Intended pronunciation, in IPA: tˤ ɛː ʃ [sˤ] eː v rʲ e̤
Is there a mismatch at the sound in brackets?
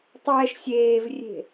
yes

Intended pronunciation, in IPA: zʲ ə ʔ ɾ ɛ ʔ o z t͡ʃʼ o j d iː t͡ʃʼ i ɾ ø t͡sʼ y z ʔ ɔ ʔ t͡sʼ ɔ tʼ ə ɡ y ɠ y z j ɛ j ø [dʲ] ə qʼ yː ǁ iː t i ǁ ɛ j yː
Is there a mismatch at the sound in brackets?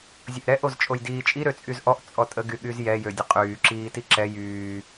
no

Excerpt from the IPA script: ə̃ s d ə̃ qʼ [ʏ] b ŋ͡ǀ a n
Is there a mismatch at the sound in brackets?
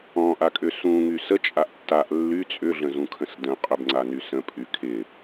no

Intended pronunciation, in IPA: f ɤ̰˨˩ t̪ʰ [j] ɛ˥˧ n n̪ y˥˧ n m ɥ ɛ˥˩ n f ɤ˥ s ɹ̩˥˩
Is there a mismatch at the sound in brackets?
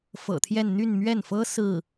no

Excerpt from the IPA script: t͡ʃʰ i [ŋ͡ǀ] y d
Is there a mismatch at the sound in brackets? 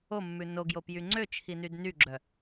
yes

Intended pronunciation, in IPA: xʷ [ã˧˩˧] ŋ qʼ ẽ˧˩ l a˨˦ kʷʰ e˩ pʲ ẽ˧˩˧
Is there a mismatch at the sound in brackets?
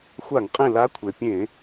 yes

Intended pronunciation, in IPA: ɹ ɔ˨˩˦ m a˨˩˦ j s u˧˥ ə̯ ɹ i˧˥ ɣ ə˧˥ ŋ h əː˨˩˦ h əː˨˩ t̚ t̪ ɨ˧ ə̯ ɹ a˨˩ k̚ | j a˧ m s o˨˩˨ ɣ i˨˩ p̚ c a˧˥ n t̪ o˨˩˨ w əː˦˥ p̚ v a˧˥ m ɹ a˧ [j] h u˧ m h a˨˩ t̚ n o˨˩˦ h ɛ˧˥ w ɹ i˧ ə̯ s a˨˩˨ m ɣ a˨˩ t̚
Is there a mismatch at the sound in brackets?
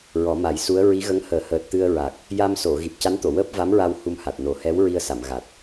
yes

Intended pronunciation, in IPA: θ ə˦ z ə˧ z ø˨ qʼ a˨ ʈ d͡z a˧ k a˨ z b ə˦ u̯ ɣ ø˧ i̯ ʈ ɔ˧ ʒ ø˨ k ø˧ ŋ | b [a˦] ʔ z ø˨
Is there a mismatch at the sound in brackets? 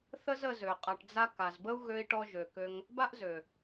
no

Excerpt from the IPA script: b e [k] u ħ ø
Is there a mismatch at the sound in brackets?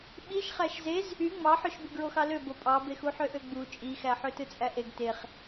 yes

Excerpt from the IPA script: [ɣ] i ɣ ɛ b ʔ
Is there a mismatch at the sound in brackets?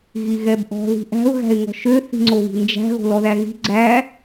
no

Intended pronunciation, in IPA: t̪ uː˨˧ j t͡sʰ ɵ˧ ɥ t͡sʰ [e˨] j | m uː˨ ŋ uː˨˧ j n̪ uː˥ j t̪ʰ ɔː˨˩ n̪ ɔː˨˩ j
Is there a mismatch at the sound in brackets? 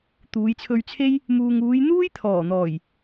yes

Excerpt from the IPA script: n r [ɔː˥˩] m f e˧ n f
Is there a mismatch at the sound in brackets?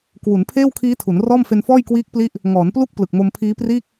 no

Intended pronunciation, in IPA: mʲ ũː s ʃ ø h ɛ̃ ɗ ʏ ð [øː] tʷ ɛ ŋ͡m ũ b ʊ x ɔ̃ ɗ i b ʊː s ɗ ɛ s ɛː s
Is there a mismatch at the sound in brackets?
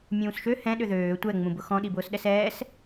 no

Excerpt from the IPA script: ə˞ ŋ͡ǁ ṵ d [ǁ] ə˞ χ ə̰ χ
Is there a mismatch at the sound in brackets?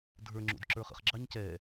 no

